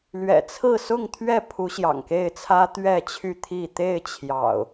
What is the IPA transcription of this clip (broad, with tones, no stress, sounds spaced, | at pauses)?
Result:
l ɥ ɛ̰˨˩ t͡sʰ ɹ̩˥˨ s ʊ˥˨ ŋ t̪ʰ ɥ ɛ˥˨ pʰ u˨˦ ɕ j ɑ̰˨˩ ŋ k e˥˨ ɪ̯ t͡sʰ ä˦ t̪ ɥ ɛ˥˨ t͡ɕʰ y˥˨ t̪ʰ i˥˨ t̪ e˥˨ ɪ̯ t͡ɕʰ j ɑ̰˨˩ ʊ̯